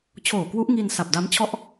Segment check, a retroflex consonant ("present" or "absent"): absent